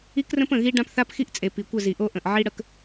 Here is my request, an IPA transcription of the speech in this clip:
i˦krə̃˦pə̃˨ɣi˦ ɖã˦pθa˦pxi˦ʔt͡sʼe˨ pi˨kʷə˦˨zi˨ʔo˦ ʔə̃˨ʔ ʕi˦ ɽə˦k

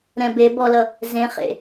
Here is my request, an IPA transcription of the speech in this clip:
ɾɛ̃be bɔlʌ | zẽχḛ

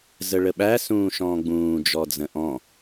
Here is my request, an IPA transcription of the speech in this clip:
zəɭəɓæ sũːʃɔ̃ːɡ͡bũː d͡ʒɔd͡zə̃ʔɔ̃

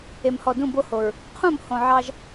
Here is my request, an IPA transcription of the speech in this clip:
e˨mhɔ˨dũ˦˨ bo˦ho˨ɹ | qʰũ˦˨mhõ˨ ʕɑ˦ʒ

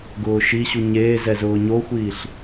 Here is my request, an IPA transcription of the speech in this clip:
ɡʊːʃiɕu ɲeːzɛ zʊːɲoxʷiːɬ

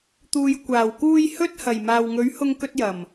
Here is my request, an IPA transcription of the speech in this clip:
t̪uː˨jkʷaː˨˩wkuː˧j hɵ˥t̚hɐ˨˩j maː˨wŋɵ˨˥ɥ hʊ˧ŋkɵ˧t̚jɐ˨˩m

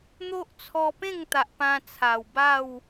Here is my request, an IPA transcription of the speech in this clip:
n̪o˦ʔt͡sʰɔ˧pẽ˥˧ŋt̪a˨ʔ pã˧t͡sʰa˨˩w ba˥˧w

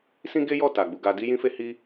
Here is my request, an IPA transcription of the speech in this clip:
sĩ˦ɡe˦jɔ˦˨ ta˨ɡ͡bu˧ɡa˦ di˦jĩ˦fe˦hi˦

